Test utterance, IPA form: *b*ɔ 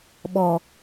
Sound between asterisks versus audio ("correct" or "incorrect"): incorrect